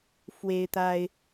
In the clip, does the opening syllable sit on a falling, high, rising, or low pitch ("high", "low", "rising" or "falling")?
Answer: high